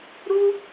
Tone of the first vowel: high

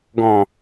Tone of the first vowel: low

